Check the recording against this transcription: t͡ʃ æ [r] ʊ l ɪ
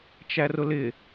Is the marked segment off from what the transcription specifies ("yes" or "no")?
no